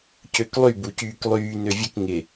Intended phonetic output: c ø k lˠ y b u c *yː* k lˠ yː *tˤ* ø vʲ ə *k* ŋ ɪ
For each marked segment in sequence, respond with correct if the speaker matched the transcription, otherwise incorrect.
correct, incorrect, correct

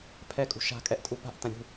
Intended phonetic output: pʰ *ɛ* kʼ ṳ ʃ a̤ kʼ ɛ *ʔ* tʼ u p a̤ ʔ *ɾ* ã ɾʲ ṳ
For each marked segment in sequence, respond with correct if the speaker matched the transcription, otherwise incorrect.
correct, correct, incorrect

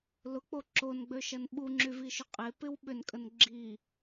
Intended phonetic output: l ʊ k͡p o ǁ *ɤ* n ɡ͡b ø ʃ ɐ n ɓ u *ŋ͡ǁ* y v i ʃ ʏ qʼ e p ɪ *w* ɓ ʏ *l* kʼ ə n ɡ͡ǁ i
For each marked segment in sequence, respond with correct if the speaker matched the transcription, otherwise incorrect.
incorrect, correct, correct, incorrect

